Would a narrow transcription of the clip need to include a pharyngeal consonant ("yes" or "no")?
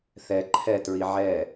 yes